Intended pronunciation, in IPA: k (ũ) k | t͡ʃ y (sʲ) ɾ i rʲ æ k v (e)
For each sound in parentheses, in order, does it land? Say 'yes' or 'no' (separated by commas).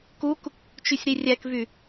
no, yes, no